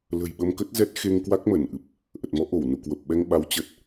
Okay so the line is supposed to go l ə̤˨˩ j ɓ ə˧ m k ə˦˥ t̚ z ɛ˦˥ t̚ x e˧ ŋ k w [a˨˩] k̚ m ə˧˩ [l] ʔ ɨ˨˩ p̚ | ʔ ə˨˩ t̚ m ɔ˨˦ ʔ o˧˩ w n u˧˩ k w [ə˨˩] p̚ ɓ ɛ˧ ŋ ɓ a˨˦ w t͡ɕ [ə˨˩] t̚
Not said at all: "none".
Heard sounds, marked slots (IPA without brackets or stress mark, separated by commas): a˦˥, n, ə˨˩, ə˨˩